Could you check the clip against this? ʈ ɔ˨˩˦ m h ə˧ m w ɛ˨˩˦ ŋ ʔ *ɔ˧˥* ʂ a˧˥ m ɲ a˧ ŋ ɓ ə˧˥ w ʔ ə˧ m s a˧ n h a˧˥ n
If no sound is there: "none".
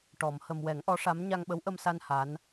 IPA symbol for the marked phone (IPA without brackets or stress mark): ɔ˧˥